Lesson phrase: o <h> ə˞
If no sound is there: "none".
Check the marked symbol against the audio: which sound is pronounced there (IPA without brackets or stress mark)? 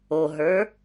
ɦ